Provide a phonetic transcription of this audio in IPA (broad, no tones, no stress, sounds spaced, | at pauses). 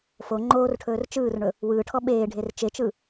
f o ŋ͡ǃ oː r ʈʰ ɵː r t͡ʃ ɯː r ɳ ɵ | w ɯː ʈʰ ɔ ɓ eː ɖʱ e r t͡ʃ e t͡ʃ ɯ